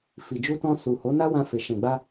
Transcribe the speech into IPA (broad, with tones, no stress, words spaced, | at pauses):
fi˨d͡ʒu˧tɔ̃˧ su˨ho˨˦na˦wã˧ fe˨ʃɛ̃˨ɡ͡ba˧